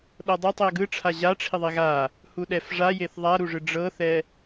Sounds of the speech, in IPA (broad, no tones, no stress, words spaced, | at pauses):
ɗɤdˤa tˤiɐ̯ɡɯʈ͡ʂʰa ʑaʈ͡ʂʰiðˤi ɣa | huɗɛfʐajeθ ðˤaɾuʐɯ ɖ͡ʐɤθɛ